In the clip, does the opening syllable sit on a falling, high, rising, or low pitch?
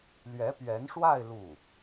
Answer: rising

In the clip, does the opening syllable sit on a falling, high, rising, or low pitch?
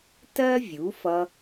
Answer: high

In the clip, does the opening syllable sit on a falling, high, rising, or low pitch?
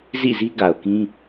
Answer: falling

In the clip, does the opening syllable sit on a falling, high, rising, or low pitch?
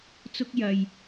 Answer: high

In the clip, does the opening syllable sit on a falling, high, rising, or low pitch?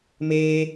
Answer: high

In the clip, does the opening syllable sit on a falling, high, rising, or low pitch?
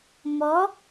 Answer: rising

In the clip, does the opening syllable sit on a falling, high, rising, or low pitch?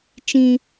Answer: high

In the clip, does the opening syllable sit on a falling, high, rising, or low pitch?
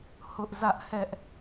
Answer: high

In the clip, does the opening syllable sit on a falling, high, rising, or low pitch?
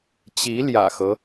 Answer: rising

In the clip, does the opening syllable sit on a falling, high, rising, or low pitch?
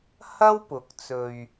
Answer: high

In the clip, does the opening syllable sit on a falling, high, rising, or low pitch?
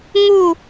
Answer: falling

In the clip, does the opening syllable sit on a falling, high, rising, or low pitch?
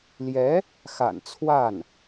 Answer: rising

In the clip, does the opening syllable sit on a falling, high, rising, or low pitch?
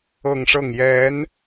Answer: falling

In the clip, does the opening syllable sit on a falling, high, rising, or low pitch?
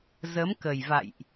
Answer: rising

